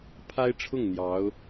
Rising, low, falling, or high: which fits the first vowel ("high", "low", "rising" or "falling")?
high